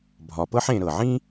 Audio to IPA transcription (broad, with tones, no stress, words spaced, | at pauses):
bʱɒ˩pɤ˥ħẽ˨ ɾɤ˩ʕĩ˥